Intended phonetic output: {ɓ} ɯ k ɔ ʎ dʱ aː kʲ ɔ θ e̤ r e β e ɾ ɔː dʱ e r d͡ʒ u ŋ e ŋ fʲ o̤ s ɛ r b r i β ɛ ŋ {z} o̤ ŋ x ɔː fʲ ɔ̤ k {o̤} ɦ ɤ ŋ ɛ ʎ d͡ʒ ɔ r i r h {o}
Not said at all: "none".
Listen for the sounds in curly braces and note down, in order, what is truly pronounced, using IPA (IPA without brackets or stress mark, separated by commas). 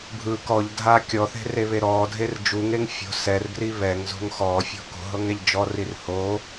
bʱ, z, o̤, o